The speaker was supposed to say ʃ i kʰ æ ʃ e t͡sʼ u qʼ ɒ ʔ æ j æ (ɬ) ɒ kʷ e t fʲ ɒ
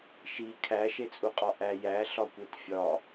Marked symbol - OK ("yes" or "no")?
yes